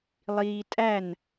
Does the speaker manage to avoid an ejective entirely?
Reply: no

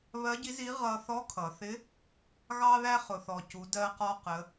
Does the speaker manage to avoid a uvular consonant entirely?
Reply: no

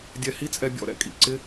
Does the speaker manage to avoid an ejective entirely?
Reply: no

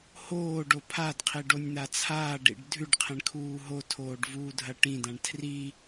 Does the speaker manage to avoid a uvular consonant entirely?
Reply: no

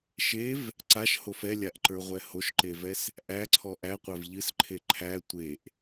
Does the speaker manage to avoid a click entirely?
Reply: no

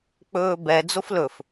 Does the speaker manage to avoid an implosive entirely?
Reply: yes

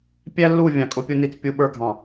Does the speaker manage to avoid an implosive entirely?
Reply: no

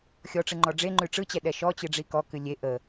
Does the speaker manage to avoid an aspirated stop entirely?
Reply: yes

